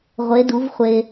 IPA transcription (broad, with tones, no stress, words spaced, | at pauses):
ʁʷe˨˥du˨˥vχʷe˧